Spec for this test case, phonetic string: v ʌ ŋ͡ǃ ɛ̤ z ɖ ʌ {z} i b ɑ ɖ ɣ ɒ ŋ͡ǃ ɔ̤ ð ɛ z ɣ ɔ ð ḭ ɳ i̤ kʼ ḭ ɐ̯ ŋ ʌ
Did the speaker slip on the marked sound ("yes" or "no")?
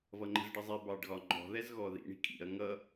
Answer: yes